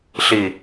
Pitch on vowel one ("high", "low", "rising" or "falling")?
low